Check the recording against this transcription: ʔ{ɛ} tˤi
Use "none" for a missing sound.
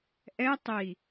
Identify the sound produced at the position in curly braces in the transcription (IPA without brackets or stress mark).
ɛ